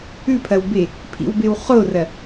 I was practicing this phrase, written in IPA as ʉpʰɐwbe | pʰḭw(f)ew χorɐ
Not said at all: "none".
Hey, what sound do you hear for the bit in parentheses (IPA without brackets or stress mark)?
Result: b